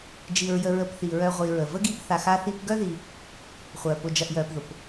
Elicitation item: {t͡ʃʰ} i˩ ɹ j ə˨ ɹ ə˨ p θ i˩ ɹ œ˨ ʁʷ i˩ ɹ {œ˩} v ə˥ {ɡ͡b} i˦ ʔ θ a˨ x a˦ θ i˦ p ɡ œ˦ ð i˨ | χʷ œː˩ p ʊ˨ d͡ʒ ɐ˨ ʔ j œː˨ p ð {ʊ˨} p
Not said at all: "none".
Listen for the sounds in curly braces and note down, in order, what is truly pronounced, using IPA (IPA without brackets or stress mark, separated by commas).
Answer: d͡ʒ, ə˩, ɡ, ʊ˩